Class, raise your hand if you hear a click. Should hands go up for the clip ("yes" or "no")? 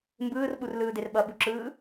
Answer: yes